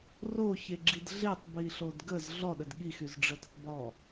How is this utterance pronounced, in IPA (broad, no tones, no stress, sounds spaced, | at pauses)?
r o ç e ɡ͡ǁ i d ɮ e tˤ b i ɬ o d ɡ ə z ɮ ɔ ɗ ə d ɠ i x y z ɖ͡ʐ ə d ə tˤ b ɔ